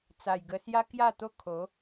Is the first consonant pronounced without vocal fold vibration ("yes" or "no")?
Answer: yes